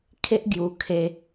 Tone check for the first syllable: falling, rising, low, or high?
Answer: high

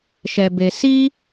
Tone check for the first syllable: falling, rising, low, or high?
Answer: low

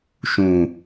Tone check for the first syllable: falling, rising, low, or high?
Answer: low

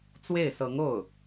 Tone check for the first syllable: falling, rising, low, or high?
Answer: falling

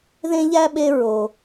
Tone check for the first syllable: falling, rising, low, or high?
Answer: high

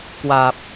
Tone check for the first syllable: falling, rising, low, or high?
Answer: low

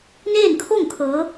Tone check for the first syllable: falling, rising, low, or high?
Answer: falling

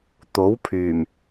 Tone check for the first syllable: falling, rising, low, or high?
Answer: rising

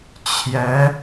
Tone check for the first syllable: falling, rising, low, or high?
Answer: rising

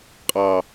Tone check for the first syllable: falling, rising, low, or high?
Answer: low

